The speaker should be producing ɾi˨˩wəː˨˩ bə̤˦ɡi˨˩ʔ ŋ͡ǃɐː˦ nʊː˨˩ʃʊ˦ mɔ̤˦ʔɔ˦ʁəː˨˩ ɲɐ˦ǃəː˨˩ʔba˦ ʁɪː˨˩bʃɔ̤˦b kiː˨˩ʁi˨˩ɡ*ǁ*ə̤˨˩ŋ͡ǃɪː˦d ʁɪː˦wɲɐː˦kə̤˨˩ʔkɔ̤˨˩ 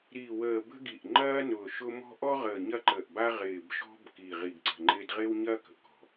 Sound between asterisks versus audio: incorrect: ǀ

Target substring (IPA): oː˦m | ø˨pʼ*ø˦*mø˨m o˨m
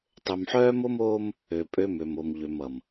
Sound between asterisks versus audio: correct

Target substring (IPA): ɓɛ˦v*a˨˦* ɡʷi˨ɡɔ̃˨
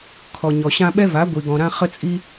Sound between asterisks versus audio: correct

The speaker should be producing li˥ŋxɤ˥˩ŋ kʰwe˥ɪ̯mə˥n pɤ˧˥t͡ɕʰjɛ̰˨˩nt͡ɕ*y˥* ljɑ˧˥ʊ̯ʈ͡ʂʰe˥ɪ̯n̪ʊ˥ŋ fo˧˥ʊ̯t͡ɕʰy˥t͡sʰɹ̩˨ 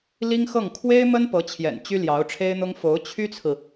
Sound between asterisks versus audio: correct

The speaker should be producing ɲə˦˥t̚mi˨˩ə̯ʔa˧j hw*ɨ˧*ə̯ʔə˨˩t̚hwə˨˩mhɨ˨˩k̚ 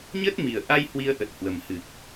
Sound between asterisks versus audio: incorrect: i˧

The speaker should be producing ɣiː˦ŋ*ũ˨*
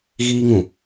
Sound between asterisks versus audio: correct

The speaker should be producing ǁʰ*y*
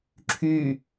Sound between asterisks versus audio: correct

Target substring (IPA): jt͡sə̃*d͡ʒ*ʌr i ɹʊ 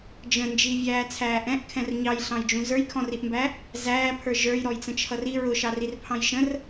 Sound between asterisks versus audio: incorrect: t͡ʃʰ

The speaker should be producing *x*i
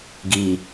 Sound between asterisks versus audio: incorrect: ɡ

